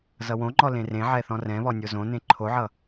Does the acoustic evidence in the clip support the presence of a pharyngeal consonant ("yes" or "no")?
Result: yes